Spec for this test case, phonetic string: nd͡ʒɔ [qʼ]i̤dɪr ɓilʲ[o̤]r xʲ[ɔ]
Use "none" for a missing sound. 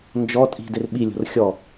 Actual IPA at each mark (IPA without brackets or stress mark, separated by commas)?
tʼ, o̤, ɔ